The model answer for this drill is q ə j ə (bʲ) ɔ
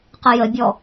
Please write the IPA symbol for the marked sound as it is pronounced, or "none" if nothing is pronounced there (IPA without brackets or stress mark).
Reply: bʲ